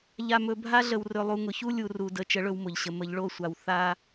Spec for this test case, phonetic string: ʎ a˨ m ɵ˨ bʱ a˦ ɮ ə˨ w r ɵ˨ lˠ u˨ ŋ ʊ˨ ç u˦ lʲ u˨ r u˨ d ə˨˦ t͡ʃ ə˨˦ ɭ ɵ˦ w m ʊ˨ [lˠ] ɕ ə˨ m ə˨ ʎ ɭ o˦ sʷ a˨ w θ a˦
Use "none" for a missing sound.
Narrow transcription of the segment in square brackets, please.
ʎ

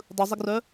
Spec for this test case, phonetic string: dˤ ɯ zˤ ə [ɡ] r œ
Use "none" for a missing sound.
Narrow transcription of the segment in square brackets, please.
ɡ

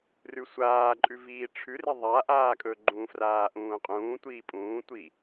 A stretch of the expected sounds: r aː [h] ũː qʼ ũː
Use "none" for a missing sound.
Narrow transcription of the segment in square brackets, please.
ʔ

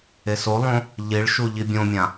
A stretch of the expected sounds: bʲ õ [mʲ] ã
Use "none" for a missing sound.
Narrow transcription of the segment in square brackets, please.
mʲ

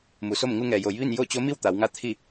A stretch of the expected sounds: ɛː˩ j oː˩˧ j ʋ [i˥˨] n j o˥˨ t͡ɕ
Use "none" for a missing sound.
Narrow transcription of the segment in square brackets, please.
i˥˨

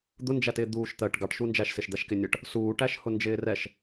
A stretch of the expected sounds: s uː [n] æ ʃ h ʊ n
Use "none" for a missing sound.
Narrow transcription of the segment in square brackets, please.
ʈ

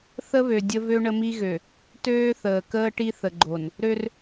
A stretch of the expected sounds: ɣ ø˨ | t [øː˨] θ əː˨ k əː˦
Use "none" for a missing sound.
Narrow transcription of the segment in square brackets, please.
øː˦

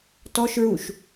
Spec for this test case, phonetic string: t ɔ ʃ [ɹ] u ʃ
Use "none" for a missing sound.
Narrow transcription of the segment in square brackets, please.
ɹ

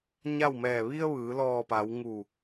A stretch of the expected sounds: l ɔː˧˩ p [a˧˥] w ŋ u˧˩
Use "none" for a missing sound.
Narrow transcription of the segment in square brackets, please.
a˩˧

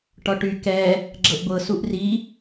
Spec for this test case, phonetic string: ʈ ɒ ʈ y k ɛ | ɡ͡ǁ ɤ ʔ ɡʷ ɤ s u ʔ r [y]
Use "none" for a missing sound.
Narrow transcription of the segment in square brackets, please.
i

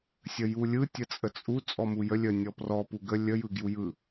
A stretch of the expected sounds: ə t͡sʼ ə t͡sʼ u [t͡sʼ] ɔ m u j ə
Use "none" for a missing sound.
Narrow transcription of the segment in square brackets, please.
t͡sʼ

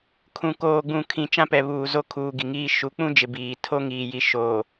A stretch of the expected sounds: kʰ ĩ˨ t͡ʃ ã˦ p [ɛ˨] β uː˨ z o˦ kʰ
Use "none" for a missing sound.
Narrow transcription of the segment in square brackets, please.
ɛ˨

